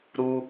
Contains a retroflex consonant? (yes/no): no